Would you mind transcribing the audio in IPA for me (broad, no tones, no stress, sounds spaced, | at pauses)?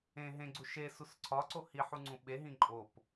ẽ ɦ ẽ ɡ͡ǀ u ʃ e s u s ǀʰ ɒ ǀ o h i ħ u ŋ͡ǀ ũ ɓ e ɦ ĩ ǃʼ o p